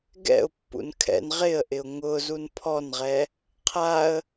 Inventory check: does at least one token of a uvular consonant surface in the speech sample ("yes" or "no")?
yes